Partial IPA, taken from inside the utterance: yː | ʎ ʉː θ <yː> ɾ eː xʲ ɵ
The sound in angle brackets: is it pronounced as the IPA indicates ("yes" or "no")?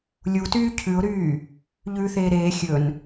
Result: no